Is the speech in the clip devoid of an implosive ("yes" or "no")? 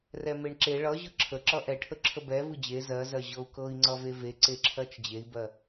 yes